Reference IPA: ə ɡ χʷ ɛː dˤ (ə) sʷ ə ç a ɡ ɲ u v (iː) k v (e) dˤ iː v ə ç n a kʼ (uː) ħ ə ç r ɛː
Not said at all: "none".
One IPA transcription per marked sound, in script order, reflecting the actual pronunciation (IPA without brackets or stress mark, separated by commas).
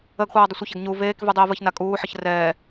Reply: ə, eː, y, uː